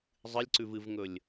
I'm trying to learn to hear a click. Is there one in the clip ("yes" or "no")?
yes